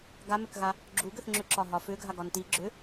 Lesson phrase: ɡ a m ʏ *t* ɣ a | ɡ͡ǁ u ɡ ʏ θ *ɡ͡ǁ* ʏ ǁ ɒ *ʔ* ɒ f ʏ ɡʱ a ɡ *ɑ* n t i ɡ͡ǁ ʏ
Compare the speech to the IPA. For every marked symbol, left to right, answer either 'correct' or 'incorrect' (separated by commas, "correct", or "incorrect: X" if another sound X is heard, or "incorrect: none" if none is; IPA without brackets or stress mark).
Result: incorrect: k, incorrect: ŋ͡ǁ, incorrect: ɦ, incorrect: ɒ